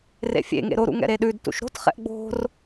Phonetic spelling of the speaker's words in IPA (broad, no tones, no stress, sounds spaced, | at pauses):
r ḛ fʲ ḛ ŋ ḛ ɾ o ɾ ṵ ŋ ɛ̰ ɾ e ɗ ʉ d t ṵ ʃ ɾ o̤ t χ ɛ̰ ʔ ɡ͡b o̤ r